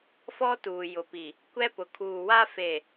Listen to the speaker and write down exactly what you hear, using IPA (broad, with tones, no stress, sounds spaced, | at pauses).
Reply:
f ɔ˦ t uː˨ j ʊ˨ p i˨ | kʷ ɛ˦ p ʊ˨ kʰ uː˨ w a˦ f e˨